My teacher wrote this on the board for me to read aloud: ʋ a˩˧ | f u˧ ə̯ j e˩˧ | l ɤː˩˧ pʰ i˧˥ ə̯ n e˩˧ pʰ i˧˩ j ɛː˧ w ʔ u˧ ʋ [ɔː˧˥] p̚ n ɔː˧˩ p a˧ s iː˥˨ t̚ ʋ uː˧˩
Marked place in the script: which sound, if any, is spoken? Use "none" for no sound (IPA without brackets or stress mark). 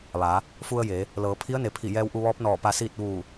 ɔː˧˥